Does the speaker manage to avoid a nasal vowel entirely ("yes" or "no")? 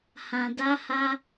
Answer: no